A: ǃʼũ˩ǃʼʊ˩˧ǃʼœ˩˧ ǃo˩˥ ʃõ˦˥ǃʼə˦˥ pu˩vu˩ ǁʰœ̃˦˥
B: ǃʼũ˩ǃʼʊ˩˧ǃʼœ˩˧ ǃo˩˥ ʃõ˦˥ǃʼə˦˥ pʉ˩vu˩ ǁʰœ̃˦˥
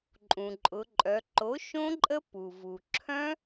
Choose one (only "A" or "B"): A